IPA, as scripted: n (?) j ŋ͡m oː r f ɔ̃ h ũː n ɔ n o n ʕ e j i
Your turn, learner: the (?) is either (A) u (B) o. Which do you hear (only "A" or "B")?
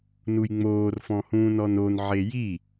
A